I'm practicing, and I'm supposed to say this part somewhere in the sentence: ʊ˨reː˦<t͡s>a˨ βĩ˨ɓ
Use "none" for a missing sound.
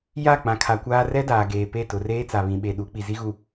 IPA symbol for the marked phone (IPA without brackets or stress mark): t͡s